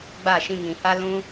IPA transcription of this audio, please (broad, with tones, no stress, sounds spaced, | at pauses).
ɡ͡b a˦˨ ʃ ĩ˧ ŋ ĩ˨ h a˧ l ũ˧